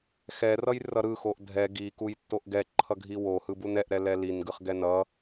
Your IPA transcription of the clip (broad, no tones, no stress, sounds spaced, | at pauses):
x ɛ r ʌ j r ʌ ɾ ɯ x o ʔ dʱ ɛ ɡ i k u j tː o ʔ ɡ ɛ ǃʰ ʌ ɡʱ i w o h ɯ b u n ɛ ʔ ɾ ɛ l ɛ l i n ɡ ɯ χ ɡ ɛ n ʌ